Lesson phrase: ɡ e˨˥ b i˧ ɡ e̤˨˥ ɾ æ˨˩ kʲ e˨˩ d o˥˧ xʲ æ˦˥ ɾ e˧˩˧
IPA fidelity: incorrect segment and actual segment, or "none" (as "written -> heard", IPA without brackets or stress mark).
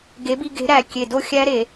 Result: none